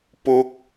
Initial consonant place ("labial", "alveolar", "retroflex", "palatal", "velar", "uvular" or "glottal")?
labial